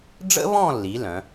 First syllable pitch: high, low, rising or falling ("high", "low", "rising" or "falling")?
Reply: high